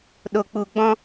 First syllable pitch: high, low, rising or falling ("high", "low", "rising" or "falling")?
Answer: low